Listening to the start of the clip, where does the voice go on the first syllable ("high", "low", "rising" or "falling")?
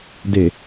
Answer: low